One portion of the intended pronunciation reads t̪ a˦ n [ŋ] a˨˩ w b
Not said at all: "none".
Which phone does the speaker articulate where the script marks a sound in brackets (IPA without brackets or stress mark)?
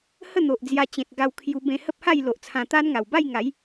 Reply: ŋ